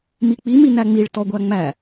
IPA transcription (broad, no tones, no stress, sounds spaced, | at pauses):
m i k͡p i m i n æ ŋ͡m i ɭ t ɔ ɡʷ æ ŋ͡m æ